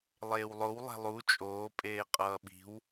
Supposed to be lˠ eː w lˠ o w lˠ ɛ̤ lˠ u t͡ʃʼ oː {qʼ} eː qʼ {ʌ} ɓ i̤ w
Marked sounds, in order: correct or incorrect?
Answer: incorrect: pʼ, incorrect: ʌː

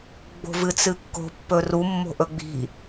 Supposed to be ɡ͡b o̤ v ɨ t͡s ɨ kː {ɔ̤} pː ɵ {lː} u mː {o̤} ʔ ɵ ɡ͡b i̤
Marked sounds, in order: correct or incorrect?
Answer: incorrect: o̤, incorrect: r, correct

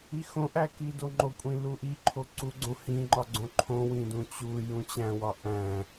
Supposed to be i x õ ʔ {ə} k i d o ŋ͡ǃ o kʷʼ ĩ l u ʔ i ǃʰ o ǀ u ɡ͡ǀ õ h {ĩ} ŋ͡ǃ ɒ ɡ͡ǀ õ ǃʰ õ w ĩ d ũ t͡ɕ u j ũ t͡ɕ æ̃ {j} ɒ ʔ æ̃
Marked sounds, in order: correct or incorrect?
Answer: incorrect: æ, correct, incorrect: w

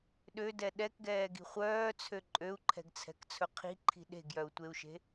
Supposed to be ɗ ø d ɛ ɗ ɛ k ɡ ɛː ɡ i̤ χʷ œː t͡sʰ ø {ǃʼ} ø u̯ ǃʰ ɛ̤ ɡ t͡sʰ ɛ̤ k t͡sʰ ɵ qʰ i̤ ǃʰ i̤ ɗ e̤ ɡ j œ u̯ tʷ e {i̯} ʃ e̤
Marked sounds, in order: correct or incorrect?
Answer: correct, incorrect: u̯

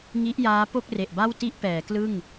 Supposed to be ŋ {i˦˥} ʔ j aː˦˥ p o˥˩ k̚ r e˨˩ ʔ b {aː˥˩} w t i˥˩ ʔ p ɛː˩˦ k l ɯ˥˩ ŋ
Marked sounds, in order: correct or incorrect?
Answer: correct, incorrect: a˥˩

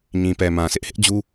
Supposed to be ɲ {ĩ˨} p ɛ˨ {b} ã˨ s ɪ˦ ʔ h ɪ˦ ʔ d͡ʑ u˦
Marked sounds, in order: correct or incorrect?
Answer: correct, incorrect: m

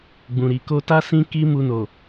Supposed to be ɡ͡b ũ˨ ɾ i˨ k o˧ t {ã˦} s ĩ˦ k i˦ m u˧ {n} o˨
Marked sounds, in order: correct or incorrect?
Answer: incorrect: a˦, correct

